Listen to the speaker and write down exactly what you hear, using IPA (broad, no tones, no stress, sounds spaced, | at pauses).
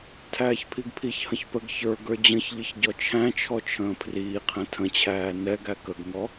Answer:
tʰ æː ç pʰ i ɡ pʰ i ç h ə̃ ç p ə ɡ ç ə˞ ɡ ə˞ d͡ʑ ə̃ ç ʎ ɪ ç ɟ ɔ t͡ʃʰ æ̃ t͡ʃʰ ɔ t͡ʃʰ ə̃ː pʰ r iː qʰ æ̃ tʰ ə̃ t͡ɕʰ æː n ɛ ɡ æ k ə ɡ ŋ ɔ